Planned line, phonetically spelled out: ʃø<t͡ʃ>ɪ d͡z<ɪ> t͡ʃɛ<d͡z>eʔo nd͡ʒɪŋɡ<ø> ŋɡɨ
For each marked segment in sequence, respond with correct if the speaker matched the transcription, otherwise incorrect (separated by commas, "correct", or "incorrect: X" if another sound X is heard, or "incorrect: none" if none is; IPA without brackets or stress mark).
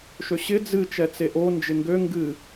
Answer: incorrect: ɕ, incorrect: ɨ, incorrect: t͡s, correct